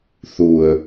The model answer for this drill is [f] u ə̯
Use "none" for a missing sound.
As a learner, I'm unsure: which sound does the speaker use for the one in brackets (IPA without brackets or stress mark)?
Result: θ